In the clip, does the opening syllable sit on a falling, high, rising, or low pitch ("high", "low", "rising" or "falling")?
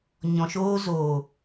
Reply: low